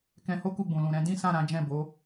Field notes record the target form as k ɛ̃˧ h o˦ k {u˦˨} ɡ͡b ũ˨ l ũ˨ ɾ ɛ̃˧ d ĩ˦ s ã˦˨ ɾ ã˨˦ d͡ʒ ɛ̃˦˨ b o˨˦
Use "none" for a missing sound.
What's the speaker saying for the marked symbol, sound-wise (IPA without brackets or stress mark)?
u˦˨